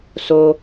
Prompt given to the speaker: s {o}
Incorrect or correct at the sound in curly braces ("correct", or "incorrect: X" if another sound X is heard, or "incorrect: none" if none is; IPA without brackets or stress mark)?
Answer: correct